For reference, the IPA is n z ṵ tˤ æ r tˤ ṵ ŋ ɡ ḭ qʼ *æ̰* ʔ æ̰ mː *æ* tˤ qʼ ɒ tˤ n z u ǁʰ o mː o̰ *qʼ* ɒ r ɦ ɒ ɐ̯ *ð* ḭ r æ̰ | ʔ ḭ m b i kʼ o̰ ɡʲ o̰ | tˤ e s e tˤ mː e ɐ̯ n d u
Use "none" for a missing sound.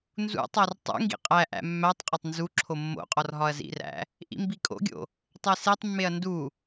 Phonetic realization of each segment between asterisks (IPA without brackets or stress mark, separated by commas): æ, æ, qʼ, z